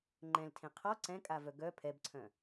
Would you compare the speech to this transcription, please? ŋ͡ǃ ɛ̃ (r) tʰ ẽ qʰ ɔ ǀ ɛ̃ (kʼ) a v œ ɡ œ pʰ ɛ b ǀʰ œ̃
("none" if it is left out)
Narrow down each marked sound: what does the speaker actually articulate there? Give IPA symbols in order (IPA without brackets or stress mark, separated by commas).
l, kʼ